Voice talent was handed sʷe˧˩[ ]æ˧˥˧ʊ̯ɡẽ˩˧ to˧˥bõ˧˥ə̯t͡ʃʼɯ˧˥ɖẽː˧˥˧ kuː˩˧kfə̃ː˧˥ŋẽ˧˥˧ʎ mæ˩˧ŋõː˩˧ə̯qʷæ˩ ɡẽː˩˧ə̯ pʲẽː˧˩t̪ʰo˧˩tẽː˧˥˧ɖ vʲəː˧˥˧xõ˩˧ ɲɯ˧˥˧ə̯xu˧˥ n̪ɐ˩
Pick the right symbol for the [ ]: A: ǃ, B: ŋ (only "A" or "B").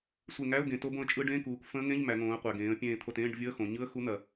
B